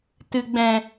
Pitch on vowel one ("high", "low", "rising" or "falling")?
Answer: low